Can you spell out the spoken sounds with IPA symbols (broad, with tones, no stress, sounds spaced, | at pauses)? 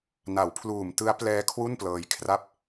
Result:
n a˩˦ w pʰ l uː˨˩ m t ɯ˦˥ a̯ p l ɛː˦˥ kʰ w u˥˩ n p l ɤː˧ j kʰ r a˥˩ p̚